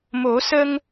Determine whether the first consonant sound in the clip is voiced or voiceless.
voiced